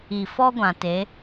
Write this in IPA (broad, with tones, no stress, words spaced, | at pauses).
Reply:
i˨ fɔ˦ɡʷã˨ te˨˦